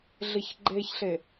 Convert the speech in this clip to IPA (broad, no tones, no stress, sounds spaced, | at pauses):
ɮ ɪ ç ɡ͡ǃ e ç ɬ e